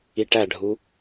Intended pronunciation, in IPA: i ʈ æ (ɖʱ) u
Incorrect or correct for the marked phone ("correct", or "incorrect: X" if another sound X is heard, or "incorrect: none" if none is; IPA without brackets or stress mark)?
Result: correct